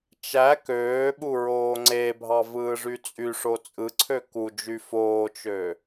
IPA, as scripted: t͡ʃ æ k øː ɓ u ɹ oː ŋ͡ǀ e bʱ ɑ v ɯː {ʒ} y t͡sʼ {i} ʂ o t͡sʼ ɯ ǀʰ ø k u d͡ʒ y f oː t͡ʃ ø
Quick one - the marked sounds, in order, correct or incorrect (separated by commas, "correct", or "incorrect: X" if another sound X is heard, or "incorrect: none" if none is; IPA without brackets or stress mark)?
incorrect: ʐ, incorrect: y